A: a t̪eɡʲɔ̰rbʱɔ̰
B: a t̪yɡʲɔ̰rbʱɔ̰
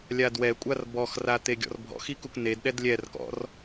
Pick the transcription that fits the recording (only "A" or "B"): A